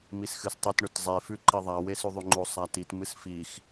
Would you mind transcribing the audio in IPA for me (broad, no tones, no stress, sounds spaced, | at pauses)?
m i s x ɨ s tˤ ɨ t ɳ ɵ t zˤ e f ʉ ǃ i ðˤ a w e s ʉ ðˤ ʉ ŋ͡ǃ o sˤ a t i t m ɨ s f i x